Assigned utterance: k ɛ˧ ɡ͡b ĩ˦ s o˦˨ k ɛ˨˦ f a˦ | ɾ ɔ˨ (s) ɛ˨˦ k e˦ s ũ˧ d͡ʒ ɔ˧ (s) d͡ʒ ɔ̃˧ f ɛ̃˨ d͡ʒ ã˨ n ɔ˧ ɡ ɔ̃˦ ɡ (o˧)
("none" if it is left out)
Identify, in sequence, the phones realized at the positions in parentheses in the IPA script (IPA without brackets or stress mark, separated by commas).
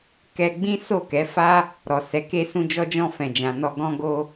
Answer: s, none, o˦